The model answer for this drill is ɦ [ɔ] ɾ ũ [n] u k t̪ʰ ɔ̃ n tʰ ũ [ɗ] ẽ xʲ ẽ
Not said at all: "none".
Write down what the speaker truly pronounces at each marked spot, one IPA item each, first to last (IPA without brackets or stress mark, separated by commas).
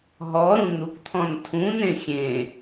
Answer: ɔ, n, n